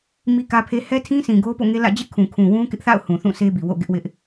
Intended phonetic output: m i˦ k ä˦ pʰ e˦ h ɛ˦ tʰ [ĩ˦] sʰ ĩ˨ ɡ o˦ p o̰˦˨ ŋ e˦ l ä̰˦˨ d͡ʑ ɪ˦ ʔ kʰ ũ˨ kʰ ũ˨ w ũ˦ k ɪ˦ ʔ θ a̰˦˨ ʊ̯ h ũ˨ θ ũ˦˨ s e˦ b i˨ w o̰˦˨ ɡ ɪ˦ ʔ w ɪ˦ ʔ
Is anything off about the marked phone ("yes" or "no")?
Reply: no